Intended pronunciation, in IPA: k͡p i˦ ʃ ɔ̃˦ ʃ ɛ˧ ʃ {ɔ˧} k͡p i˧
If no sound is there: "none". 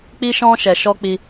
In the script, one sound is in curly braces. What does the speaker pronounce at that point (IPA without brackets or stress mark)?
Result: ɔ˦